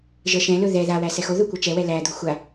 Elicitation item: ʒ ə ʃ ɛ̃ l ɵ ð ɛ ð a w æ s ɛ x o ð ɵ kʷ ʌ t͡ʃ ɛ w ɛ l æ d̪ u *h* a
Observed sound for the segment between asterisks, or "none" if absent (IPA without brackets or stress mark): xʷ